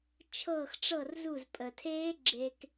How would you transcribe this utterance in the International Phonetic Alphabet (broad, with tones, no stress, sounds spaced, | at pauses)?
t͡ʃʰ ɤː˧˩ x ʈ͡ʂ ɤ˧˩ r z u˧˩ z pʼ ə˩ tʰ eː˦˥ ɡ͡ǁ e˧ k